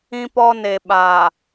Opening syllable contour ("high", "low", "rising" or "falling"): high